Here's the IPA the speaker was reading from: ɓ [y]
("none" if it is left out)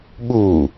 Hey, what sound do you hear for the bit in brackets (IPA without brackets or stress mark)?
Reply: u